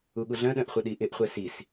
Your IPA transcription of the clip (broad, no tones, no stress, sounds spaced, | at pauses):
u ɠ u ɮ œ̃ ɗ œ̃ ʔ χʷ ə ɗ i ʔ ɪ ʔ χʷ ɛ s i s